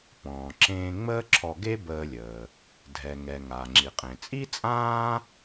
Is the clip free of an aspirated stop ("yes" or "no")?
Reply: no